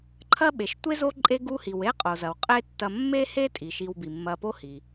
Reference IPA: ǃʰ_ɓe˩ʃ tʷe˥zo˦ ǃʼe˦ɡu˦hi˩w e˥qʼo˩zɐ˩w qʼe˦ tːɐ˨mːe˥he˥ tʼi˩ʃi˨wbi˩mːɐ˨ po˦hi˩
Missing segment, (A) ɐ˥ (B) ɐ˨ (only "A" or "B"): A